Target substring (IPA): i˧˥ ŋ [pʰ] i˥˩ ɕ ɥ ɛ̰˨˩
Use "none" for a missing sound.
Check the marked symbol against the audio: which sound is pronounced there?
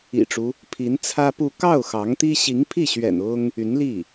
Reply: pʰ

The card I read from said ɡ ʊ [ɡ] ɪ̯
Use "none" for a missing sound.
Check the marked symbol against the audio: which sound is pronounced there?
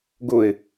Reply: none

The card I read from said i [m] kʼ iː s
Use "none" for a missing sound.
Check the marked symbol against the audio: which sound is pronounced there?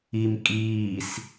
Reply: m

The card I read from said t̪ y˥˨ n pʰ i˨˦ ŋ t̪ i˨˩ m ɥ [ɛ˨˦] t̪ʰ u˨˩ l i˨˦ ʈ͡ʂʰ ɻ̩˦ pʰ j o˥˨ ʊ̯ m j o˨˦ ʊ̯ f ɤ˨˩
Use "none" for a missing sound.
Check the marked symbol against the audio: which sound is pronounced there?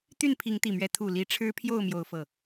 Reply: ɛ˨˦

